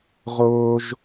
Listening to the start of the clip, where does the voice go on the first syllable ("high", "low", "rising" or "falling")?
high